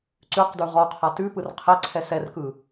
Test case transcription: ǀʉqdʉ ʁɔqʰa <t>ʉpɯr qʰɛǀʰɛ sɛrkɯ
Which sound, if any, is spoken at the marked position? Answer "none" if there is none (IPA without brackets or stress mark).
t